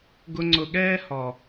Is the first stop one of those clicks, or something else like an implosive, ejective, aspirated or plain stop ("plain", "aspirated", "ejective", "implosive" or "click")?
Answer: plain